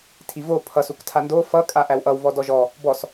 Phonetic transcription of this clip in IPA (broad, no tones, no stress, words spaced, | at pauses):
tʰivo pʰʌsuk tʰando fʌkʼa ʔæwʔʌw vɔdɔʒɔ | bɔs